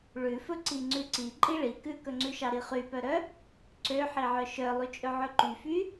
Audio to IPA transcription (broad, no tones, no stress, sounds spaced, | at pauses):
ɭ ʉ f ɵ ǀ i ŋ͡ǀ ʉ ǀ i ǃʼ i ɭ i k ʉ k ɵ ŋ͡ǀ ʉ ʃ ɑ ɾ i χ y p œ ɾ œ | ǀ ø ħ i ʕ œ ʃ œ lˠ y t͡ʃʼ ɵ ʕ ɵ ǃ y f y